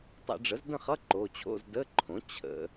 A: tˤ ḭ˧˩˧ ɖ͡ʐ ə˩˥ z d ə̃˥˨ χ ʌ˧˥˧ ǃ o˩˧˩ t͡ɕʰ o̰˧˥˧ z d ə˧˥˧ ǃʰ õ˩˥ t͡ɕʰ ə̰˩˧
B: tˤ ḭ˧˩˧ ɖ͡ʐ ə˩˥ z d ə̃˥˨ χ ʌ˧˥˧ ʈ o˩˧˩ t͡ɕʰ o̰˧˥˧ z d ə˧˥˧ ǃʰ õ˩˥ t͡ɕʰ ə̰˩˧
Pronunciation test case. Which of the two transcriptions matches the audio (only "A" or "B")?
A